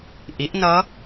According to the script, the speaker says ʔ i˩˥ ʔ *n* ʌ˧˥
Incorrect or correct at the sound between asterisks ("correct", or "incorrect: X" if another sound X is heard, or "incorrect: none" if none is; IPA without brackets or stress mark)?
correct